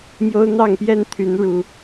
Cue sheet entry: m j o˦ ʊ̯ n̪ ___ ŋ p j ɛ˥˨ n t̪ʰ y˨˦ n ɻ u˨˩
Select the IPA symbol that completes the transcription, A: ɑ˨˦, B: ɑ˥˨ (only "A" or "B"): B